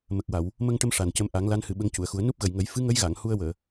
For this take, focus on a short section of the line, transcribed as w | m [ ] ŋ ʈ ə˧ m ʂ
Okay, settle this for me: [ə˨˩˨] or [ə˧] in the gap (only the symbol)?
ə˧